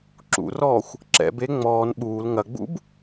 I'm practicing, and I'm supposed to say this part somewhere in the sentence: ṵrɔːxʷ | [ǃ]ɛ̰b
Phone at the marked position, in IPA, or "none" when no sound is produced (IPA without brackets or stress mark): ǁ